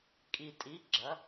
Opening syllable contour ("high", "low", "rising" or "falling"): low